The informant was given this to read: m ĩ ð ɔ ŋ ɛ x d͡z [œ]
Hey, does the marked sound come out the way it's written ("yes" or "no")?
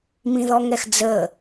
no